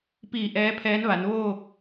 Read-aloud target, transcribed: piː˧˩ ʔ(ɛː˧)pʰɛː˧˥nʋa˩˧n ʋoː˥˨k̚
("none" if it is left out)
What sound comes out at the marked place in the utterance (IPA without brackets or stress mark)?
ɛː˧˥